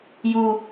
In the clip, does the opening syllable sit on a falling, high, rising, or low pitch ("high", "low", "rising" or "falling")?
high